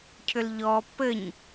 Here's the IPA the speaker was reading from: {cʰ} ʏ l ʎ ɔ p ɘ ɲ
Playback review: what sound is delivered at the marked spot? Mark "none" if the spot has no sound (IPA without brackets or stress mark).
cʰ